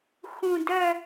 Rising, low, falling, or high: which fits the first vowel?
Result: low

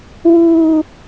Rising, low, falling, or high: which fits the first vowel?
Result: high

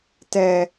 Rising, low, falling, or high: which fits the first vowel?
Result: low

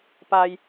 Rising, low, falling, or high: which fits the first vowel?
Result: low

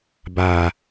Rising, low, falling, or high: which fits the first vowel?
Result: low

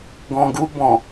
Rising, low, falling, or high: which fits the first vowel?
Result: low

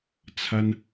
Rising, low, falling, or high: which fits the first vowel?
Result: high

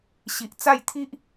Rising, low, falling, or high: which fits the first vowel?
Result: low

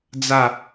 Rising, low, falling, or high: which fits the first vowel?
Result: falling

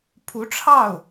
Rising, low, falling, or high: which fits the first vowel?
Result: rising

